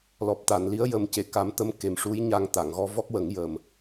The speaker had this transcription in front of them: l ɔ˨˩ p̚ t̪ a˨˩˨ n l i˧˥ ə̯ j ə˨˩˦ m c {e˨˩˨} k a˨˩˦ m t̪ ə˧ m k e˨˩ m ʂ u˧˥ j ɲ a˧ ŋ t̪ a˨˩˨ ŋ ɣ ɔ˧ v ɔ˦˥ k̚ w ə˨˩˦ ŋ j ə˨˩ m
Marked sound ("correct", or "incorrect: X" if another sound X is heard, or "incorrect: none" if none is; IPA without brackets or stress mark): correct